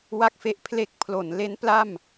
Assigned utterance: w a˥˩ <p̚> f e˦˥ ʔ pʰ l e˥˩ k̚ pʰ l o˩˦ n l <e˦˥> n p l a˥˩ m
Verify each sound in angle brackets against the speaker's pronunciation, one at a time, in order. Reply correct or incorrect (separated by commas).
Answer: incorrect, correct